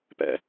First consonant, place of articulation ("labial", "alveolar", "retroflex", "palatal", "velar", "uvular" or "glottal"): labial